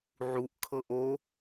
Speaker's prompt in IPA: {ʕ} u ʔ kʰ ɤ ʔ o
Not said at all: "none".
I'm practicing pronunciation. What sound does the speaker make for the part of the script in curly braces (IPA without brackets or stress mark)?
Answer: ʕ